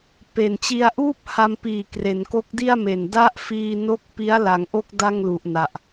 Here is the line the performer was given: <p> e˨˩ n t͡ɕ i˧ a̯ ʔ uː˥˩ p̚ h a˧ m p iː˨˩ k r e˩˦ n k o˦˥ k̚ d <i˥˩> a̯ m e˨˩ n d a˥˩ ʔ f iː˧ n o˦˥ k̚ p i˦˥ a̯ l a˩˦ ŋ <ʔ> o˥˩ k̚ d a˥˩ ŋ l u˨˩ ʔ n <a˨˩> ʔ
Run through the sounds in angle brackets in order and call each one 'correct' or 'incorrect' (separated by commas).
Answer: correct, correct, correct, correct